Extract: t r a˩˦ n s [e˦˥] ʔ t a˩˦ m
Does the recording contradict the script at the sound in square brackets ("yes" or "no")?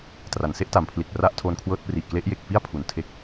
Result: no